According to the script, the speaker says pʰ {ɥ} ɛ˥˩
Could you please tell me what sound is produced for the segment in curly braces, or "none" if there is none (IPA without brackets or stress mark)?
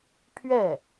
ɥ